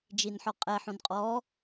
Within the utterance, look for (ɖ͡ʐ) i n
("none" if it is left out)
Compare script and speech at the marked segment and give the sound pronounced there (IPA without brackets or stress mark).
d͡ʒ